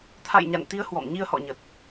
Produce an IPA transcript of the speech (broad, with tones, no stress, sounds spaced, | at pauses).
t̪ʰ a̰˧˨ j ɲ a̰˧˨ n t̪ i˨˦ ə̯ h w ɔ̰˧˨ m ɲ i˧ ə̯ h ɔ̰˧˨ ɲ ə˨˩ t̚